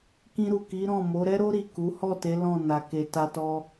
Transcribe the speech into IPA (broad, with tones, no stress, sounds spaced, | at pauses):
k ĩ˧ ɾ u˨ k i˨˦ ɾ ɔ̃˦˨ m o˨˦ ɾ ɛ˦ ɾ o˦ ɾ i˦˨ k u˨˦ h ɔ˦˨ t e˨˦ l ɔ̃˦˨ n a˨ k e˨ t a˧ t ɔ˧